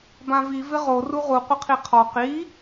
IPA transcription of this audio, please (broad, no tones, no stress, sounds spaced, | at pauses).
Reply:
b ã v i v ɪ ʁ o r u ʁ u qʷ ɪ qʰ i qʰ ɔ q i